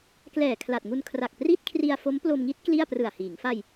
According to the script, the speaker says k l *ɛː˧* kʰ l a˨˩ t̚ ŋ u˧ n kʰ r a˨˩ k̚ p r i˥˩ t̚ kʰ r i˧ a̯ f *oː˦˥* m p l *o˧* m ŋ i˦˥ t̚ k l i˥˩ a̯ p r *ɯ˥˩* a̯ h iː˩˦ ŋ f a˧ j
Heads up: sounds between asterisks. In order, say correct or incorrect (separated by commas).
incorrect, incorrect, correct, incorrect